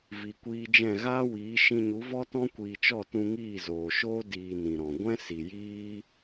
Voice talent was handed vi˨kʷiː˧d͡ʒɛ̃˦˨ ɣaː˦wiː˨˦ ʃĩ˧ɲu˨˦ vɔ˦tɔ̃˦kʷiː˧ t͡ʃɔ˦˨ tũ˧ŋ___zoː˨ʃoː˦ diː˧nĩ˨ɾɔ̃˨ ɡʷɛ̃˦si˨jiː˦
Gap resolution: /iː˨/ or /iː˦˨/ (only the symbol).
iː˦˨